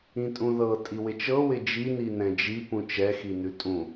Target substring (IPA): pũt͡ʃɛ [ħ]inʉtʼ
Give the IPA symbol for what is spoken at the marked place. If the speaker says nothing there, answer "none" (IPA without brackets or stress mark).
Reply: x